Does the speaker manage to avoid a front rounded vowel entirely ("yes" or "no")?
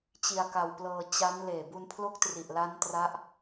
yes